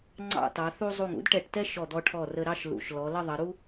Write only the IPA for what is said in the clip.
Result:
ŋ͡ǀ ɑ̰˥˧ t ɑ˩˧ θ u˥ zˤ u˧˩ ŋ ṵ˥ d ʈ ɛ˧˩ ʈ t ɛ˥ ʃ ɔ˧˩ d̪ ɔ˧ ʈʰ ɔ˧˩ r ə˧ ɾ ɑ˥ ʃ l ṵ˩˧ ʃ l ɔ˩˧ l ə˥˧ ðˤ ə˩˧ ɾ u˥

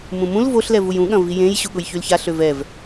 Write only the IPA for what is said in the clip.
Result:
m ũ m ũ l v o ɬ l ɛ v u j ũ ɠ ɐ̃ v i j ẽ j ɕ u ɠ ʊ j ç y l ç a ɬ ø v ɛ v

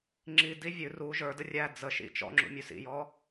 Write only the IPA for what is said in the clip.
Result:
ŋ͡ǁ i d i vʲ ʉ r u ʒ ə˞ d ə rʲ æ d͡z ə ʃ ḭ t͡ʃ ɔ̰ ŋ͡ǁ ṵ mʲ ʉ s ḭ j ɔ

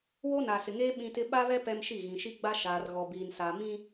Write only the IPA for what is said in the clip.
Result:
w o˦ n aː˨ s ɪ˨ ŋ eː˦ ɓ ĩ˦ t ɪ˦ ɓ a˦ β ɛ˦ p ɛ˦ m ʃ i˦˨ ɣ ĩ˨ ʃ i˦ ɡ͡b a˦ ʃ aː˨ r ɣ ɔ˨ b iː˨ n s aː˨ m ĩ˦

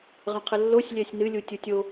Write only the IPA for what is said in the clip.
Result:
ʁ ə̃ qʰ ə lː o sʲ lʲ ɛ sʲ n ɨ lʲ u tʲ u tʲ o

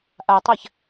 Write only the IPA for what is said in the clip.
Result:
ʔ a tˤ a ç

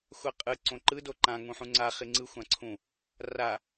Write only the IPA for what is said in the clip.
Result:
xʷ a qʼ ɯ ǀ õ ǃ ɯ d o ǃ ã ŋ ũ ħ ũ ŋ͡ǀ a χ i ŋ͡ǀ ɯ xʷ ã ǀʰ ũ | r a

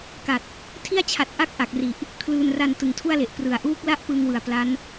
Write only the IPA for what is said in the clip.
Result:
k a˨˩ t̚ | tʰ i˥˩ a̯ t͡ɕʰ a˨˩ t̚ ʔ a˥˩ k̚ ʔ a˨˩ k̚ r i˨˩ ʔ | kʰ l ɯː˧ n r a˧ n t ɯ˨˩ ŋ tʰ u˥˩ a̯ l e˨˩ ʔ p r ɯ˨˩ a̯ ʔ uː˦˥ k̚ l a˥˩ ʔ p ɯ˧ ŋ w ɯ˨˩ a̯ p l a˦˥ n

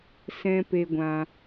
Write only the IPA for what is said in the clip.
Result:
s ɛ̃˨ p e˧ ɡʷ ã˧

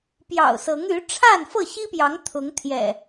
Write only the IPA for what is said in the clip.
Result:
p j ɑ̰˨˩ ʊ̯ s ɤ˨˦ ŋ y˨˦ ʈ͡ʂʰ a˥˨ n f ɤ˥˨ ɕ i˦ p j ɑ˨˦ ŋ t̪ʰ ʊ˨˦ ŋ t̪ʰ j ɛ̰˨˩

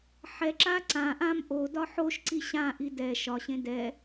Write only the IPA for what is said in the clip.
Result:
ħ ɛ ǁ a ǀ ã ʔ ã m ʔ o d ɒ ħ o ʃ ǀ i ɕ ã ʔ i d ɛ ʃ ɒ ɕ ẽ d ɛ

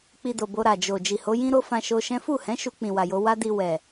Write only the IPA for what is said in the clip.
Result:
k͡p i˧ d o˨ b o˧ ɾ a˨ d͡ʒ o˨ d͡ʒ i˨ h o˨˦ j ĩ˦ ɾ o˦ f ã˧ ʃ o˧ ʃ ɛ̃˦ f u˦˨ h ɛ̃˨˦ ʃ u˧ k͡p ĩ˨ w a˨ j o˧ w a˦ d i˧ w ɛ˨

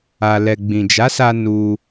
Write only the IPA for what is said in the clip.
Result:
a˨ l ɛ˨ ɡ͡b ĩ˨ d͡ʒ a˨˦ s a˧ n u˧

